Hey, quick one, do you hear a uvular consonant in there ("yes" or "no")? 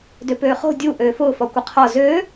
yes